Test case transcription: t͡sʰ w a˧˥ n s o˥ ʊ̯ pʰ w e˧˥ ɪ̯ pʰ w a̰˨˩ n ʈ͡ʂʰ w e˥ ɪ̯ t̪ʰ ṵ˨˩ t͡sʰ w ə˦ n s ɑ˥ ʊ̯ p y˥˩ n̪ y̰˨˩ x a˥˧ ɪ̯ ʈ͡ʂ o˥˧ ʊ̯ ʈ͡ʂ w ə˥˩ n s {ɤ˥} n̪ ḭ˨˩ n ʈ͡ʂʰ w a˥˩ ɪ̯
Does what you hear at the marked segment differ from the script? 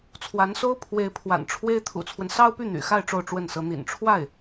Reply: yes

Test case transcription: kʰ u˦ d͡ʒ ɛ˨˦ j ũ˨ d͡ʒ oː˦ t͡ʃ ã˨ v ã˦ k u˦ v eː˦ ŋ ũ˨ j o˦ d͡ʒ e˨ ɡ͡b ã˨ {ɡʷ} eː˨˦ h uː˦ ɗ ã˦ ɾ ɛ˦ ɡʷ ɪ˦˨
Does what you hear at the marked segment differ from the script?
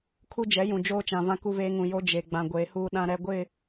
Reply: no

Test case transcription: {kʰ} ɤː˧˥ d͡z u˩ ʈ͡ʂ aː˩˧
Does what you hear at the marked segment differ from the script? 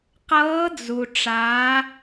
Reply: yes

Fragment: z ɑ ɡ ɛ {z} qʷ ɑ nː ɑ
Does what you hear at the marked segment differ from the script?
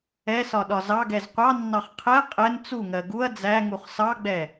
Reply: no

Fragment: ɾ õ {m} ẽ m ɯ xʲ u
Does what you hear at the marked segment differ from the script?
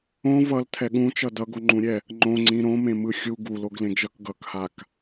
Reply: no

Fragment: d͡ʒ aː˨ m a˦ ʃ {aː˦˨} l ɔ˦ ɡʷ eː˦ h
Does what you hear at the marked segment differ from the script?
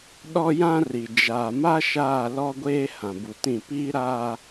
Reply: no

